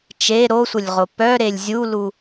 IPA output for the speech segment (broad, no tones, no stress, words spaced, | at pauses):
t͡ʃe ɾosʷəlʲʁo pœɾelʲ zʲulu